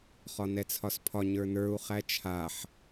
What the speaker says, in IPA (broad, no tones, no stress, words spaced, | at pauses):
χɒnɛt͡sʰɒspʰɒ ɲə˞nə˞u̯ χæt͡ʃʰaħ